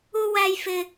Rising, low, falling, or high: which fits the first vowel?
high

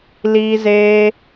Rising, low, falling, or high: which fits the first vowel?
high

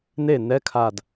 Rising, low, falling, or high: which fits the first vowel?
falling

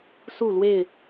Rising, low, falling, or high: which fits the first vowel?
falling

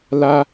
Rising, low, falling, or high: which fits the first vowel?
high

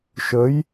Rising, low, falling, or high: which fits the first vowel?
rising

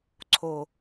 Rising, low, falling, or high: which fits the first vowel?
low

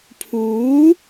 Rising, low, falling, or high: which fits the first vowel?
rising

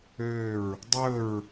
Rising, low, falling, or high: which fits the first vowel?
falling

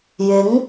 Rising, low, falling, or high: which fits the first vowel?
rising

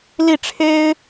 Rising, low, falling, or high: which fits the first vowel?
falling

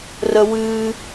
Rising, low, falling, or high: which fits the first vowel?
high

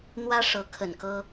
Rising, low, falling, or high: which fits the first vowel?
high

